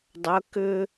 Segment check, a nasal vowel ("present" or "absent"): absent